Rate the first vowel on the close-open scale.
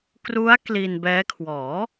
close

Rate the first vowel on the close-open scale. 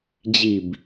close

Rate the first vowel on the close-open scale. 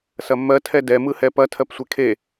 open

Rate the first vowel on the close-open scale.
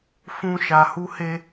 close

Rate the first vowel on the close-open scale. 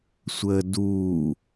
mid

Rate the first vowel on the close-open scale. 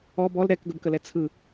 mid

